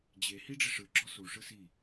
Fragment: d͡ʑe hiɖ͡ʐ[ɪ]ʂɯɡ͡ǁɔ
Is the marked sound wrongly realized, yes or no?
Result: no